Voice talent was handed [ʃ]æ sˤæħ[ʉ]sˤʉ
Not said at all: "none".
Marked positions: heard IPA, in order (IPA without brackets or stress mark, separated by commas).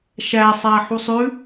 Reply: ʃ, u